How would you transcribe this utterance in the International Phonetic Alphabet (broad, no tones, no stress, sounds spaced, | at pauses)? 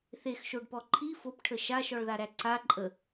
θ e x ʃ o ɖ p ɔ ǃʰ i f o p ʈʰ ə ʃ a ʃ ɔ ɭ ð a ɾ æ ǀ a ǃʼ ə